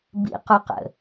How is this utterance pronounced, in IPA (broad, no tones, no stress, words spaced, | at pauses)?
bḭquqə̰